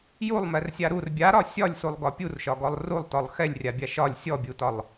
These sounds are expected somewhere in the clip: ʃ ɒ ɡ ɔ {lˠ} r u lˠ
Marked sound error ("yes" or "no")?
no